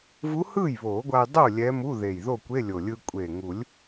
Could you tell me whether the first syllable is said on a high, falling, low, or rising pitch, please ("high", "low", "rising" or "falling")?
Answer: rising